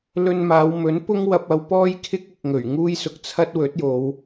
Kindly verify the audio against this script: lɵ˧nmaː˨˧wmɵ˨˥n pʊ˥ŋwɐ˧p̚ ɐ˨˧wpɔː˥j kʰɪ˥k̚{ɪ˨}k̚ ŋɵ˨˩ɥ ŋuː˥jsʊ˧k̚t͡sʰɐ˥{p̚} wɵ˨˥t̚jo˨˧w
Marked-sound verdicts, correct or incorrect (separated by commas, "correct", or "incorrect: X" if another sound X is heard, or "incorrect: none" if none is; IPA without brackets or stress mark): correct, incorrect: t̚